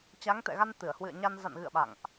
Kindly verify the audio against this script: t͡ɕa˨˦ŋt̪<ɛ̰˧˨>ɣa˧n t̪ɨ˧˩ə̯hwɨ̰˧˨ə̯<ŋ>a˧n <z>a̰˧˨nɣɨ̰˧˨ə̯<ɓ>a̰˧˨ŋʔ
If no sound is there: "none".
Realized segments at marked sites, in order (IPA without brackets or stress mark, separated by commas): ɛ̰˧˨, ɲ, z, ɓ